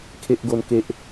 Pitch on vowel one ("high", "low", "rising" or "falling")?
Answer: high